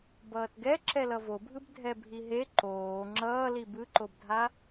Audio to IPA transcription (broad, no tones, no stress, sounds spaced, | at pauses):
b ʌː t ɡ ɛ ǁ ɛ l ʌ v o bʱ ɯ b dʱ ɛ bʱ i ɦ e ǃ oː ŋ͡ǁ ʌː l i b ɯ ǃ o b dʱ a